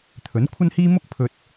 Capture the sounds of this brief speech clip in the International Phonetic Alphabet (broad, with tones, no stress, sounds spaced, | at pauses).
t̪ʰ ɵ˨˥ n kʷʰ ɐ˥ n h iː˥ m ʊ˥ k̚ pʰ ɵ˧ t̚